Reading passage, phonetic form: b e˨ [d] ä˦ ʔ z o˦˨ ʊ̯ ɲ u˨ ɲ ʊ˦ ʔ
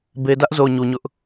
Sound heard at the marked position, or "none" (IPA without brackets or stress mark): d